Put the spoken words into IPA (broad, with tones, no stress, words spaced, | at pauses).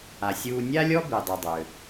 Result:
a˩sʲuː˧ nʲa˥lʲɔ˥ bi˩dˤy˩dˤø˩